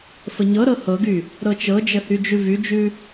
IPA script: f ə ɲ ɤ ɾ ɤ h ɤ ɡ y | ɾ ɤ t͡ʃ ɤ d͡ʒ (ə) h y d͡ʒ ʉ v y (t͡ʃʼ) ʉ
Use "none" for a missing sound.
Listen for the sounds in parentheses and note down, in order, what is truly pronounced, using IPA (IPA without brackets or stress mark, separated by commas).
ə, d͡ʒ